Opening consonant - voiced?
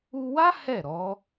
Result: yes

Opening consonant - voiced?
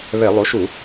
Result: yes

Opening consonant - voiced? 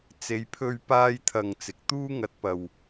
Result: no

